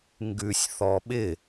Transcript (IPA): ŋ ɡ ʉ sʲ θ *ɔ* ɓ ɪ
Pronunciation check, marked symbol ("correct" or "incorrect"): correct